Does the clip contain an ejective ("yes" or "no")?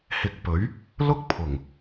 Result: no